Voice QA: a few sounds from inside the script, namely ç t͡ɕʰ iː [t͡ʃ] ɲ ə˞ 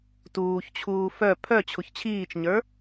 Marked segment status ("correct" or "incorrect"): correct